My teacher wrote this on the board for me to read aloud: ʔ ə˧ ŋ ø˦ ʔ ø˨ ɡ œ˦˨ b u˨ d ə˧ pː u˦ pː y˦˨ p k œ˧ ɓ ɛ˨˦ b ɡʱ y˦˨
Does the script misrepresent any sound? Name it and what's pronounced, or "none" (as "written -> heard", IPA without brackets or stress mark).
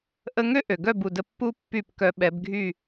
none